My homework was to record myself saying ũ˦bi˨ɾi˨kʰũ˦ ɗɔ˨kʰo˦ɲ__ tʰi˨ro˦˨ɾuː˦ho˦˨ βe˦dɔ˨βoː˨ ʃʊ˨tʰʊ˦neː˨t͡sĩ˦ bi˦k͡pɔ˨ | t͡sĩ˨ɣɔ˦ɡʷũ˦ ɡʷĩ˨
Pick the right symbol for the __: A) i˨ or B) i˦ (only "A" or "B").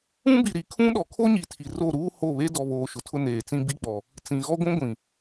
A